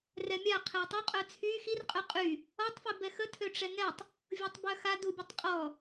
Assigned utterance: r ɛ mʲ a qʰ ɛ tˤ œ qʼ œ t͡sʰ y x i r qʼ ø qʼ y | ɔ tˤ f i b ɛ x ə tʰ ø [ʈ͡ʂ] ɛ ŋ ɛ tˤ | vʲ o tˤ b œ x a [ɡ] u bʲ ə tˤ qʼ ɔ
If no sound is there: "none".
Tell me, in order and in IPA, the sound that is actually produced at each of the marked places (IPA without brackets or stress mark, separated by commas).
ʈ͡ʂ, d